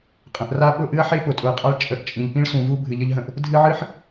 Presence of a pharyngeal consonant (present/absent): present